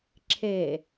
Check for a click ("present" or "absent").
present